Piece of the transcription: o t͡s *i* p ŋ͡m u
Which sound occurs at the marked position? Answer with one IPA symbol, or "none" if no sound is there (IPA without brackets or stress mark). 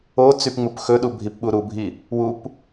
y